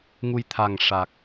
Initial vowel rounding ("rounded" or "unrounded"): rounded